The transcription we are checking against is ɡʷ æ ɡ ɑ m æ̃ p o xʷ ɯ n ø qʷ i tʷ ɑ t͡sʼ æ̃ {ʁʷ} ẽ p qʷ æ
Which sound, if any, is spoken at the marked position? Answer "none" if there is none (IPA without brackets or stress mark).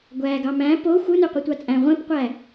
ʁʷ